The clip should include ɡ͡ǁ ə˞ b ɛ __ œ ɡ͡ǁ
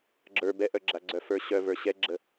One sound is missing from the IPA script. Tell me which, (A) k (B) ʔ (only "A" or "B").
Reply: B